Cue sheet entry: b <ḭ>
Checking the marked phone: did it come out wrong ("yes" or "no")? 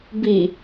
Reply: yes